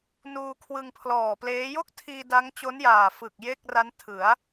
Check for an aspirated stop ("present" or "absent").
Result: present